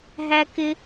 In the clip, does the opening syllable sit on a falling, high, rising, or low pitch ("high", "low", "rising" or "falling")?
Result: high